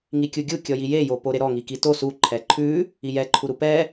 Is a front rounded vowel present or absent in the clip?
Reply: absent